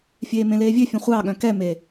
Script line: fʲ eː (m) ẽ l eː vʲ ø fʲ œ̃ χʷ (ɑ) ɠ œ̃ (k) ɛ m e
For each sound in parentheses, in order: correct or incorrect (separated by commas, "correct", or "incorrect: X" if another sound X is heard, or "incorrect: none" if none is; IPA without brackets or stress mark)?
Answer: correct, correct, correct